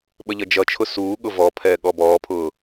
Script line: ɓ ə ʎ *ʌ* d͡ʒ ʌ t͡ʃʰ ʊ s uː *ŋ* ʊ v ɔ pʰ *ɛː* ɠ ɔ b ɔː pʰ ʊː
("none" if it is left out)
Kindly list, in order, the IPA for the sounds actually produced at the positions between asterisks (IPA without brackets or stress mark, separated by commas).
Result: ʌ, ɠ, ɛː